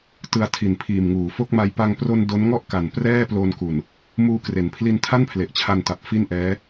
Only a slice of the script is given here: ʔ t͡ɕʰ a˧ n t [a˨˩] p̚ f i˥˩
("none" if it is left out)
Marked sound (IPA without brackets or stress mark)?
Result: a˨˩